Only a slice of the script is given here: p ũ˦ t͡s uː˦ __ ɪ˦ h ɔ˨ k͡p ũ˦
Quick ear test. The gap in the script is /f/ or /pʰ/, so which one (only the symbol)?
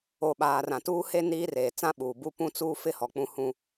f